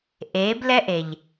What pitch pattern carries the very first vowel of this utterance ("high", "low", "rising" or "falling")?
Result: rising